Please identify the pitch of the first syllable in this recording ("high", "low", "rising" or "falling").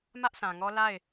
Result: high